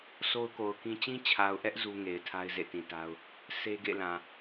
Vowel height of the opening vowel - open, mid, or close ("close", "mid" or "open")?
mid